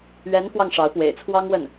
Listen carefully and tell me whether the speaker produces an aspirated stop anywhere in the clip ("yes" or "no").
yes